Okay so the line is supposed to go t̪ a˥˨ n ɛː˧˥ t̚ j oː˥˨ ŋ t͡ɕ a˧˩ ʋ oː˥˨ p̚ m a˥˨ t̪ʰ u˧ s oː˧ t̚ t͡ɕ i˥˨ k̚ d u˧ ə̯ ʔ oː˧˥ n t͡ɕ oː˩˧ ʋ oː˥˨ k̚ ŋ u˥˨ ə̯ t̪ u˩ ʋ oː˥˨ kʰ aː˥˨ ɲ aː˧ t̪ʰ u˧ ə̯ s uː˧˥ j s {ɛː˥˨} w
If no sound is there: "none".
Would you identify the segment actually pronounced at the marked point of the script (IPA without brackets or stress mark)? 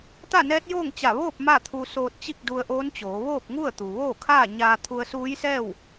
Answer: ɛː˥˨